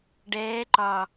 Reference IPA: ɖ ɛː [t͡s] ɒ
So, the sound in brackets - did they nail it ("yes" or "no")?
no